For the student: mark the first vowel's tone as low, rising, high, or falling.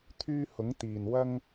high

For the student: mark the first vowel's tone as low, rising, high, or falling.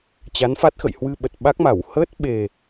rising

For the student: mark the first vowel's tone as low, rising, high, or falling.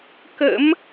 rising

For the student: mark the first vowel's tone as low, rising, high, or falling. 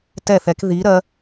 falling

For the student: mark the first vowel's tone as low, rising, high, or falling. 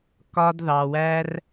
high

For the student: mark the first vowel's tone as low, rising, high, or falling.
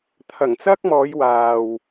low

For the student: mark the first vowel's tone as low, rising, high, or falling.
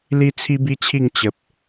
high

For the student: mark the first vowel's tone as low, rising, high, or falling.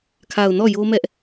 low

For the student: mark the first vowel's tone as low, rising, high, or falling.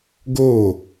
falling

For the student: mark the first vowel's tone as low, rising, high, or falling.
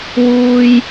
high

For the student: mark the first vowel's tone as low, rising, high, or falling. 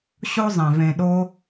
high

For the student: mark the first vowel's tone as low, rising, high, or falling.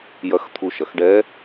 rising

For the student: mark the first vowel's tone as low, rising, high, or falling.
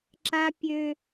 high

